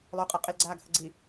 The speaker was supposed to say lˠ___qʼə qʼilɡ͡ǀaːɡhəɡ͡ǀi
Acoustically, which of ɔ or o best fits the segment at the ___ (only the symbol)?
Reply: o